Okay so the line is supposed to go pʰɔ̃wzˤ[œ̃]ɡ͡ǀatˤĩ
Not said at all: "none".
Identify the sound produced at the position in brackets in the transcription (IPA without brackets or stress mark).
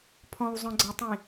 œ̃